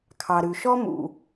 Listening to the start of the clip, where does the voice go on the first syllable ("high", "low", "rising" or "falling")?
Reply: low